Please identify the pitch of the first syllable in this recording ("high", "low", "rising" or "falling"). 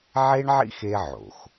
high